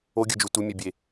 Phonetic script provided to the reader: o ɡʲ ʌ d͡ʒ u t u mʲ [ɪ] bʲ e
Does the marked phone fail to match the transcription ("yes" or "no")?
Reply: yes